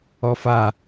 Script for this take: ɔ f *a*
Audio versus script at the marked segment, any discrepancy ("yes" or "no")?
no